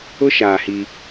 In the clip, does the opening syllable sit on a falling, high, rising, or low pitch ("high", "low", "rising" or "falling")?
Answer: high